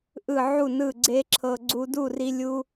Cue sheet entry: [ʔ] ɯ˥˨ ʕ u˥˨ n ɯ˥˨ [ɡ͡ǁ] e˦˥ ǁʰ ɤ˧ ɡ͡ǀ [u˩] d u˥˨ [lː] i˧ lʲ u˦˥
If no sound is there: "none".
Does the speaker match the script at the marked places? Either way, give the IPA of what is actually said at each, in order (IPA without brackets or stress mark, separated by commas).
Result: ʔ, ɡ͡ǀ, u˧, r